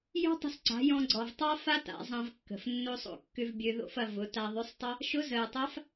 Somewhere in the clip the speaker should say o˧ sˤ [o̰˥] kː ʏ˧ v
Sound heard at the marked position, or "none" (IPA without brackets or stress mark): o̰˧